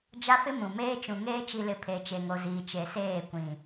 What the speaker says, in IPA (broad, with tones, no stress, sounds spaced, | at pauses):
d͡ʒ a˦ f ɪ˦ m ũ˨ m eː˦ t͡ʃ ũ˨ ŋ eː˦ t͡ʃ i˨ l ɪ˨ pʰ e˨ t͡ʃ e˨ ŋ o˨ z iː˨ t͡ʃ e˨ s eː˦˨ kʷ ĩ˨